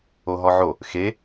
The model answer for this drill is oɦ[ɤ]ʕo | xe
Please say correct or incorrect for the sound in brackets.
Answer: incorrect: ɔ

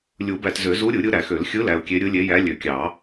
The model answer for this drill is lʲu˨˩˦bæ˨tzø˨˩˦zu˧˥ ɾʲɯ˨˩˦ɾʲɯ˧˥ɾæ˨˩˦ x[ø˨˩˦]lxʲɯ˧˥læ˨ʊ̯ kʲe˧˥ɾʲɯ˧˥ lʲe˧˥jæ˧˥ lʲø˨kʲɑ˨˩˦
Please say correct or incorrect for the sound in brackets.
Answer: correct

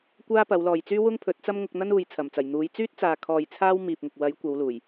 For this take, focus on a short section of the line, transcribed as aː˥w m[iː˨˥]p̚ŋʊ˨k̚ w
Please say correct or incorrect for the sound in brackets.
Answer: incorrect: iː˨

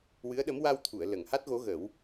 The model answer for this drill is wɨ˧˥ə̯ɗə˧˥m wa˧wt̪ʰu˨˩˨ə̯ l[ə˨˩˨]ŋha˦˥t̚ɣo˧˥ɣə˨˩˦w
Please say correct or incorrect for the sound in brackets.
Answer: correct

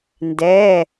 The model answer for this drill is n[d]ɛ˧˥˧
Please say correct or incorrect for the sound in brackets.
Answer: correct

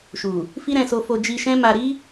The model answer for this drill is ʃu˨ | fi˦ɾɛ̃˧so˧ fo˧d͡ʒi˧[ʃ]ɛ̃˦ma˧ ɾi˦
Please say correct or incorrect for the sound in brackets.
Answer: correct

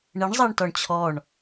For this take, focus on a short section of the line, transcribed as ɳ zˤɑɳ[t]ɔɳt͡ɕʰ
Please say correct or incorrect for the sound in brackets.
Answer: correct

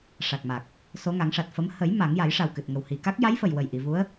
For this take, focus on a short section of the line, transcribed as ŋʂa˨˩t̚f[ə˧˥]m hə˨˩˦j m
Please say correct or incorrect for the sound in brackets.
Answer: correct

